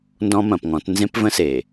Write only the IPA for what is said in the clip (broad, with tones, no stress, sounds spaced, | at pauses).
n d ɔ̃˦ m ɐ̃˨ p ŋ ɔ̃˨˦ t n z ẽ˦ p v ə̃˦ s e˨